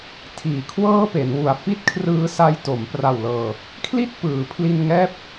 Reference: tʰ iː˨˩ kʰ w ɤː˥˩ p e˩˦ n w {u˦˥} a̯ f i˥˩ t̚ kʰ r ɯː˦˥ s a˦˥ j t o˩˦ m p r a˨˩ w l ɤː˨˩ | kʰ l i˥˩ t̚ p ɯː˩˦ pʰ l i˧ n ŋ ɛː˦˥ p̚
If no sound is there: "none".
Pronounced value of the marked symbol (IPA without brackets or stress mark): u˨˩